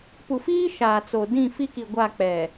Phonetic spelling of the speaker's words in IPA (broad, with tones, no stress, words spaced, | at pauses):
pu˨fiː˦ ʃaː˨t͡so˨ dĩ˦˨fi˦ki˨ ɡʷa˦˨k͡pɛ˨